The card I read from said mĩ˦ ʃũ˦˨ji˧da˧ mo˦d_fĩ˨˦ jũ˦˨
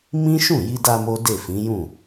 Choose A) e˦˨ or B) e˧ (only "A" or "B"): A